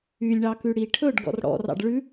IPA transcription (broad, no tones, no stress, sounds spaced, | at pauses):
y lʲ ɳ ɑ k ʉ ɽ i ʈʰ ɵ ɖ ɡ ɔ̰ r ɽ ɔ̰ r ɑ̰ ɖ ɭ ʉ